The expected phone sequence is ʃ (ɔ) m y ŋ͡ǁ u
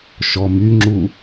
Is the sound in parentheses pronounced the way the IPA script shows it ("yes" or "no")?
yes